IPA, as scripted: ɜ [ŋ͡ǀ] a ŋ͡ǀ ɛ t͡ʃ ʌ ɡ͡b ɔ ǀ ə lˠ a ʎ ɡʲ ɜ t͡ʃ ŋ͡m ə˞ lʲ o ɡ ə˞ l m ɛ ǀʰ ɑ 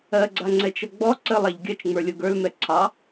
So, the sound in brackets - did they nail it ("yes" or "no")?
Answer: no